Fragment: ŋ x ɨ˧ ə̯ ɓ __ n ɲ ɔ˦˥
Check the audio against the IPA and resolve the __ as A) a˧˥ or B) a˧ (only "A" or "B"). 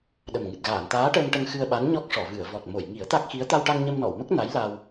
A